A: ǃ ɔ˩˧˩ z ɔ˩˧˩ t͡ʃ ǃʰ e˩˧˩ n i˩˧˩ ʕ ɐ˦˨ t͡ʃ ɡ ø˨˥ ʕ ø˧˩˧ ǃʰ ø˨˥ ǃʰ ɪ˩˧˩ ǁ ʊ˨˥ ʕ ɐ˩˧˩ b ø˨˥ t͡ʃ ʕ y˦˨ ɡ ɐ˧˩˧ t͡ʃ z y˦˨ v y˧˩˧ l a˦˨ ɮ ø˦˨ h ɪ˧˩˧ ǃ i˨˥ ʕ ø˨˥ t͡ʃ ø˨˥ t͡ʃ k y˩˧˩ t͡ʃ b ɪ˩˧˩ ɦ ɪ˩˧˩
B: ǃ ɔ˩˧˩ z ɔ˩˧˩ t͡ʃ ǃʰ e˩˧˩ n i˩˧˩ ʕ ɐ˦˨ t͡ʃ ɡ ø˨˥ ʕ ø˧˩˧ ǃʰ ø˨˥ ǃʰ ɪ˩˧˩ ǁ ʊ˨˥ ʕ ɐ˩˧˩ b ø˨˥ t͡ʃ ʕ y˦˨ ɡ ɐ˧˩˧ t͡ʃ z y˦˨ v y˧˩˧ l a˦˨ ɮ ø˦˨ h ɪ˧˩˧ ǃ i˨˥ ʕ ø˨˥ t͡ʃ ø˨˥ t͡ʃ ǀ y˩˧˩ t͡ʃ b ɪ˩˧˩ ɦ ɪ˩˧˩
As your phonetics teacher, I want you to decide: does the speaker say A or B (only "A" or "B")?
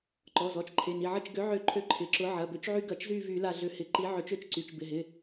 B